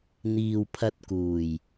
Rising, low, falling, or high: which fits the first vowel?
low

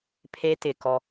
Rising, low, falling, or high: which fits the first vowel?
high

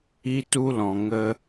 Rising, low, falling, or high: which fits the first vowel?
high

